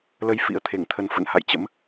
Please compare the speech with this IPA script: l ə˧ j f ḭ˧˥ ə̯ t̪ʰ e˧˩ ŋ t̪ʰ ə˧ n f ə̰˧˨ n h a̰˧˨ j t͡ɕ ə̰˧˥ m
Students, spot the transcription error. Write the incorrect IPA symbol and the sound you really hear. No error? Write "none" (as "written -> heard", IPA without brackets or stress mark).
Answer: none